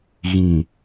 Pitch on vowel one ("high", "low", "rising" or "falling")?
low